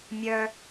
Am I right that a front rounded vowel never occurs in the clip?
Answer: no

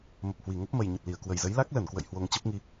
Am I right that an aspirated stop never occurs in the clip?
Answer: yes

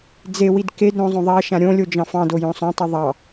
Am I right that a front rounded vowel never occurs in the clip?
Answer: yes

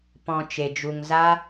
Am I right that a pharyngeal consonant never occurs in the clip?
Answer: yes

